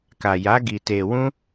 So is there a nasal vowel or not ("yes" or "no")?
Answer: yes